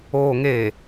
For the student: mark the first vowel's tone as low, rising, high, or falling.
low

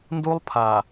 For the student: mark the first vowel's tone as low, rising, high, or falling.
high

